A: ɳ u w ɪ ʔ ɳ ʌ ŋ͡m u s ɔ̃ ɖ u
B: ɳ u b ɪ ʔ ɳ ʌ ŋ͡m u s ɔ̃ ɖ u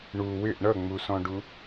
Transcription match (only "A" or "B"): A